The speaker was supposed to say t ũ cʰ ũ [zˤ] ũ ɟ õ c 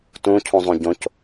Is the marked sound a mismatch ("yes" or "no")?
no